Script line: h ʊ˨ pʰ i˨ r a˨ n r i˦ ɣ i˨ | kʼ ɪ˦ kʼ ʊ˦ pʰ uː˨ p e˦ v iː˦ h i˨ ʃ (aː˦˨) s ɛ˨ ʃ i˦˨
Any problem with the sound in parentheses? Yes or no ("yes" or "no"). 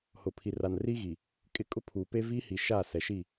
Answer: no